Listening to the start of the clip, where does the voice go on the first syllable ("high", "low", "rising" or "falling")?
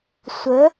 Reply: rising